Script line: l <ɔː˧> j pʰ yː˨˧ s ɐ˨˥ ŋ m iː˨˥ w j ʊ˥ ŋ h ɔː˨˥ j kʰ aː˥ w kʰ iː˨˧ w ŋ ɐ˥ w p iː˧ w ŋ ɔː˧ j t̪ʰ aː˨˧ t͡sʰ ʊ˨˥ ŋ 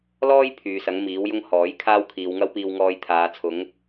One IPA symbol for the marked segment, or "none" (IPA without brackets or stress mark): ɔː˥